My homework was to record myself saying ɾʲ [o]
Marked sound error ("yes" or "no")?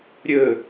yes